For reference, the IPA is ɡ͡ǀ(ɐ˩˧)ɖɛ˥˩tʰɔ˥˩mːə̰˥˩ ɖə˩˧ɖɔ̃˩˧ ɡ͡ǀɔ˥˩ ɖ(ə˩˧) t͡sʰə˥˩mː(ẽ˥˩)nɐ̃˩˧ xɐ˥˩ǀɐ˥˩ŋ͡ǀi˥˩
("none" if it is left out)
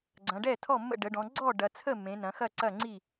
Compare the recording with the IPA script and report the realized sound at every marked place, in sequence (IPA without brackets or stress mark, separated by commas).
ɐ̃˩˧, ɐ˩˧, ẽ˩˧